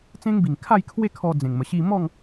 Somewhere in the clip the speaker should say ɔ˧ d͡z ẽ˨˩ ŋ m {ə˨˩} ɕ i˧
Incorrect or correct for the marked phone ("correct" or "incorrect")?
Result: correct